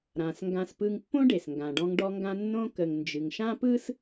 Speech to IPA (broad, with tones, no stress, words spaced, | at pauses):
ɾã˩s ŋɡã˧spɯ˧ŋpːõ˥ɖe˩s ŋɡã˩ɖɔ̃˧ŋ ɖɔ˧ŋɡã˧ nːõ˥ kə˩ŋ nd͡ʒɨ˩ŋʃã˥pɯ˥s